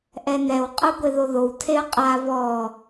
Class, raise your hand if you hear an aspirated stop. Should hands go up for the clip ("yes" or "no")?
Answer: yes